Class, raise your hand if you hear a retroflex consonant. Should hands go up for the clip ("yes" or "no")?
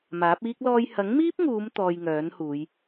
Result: no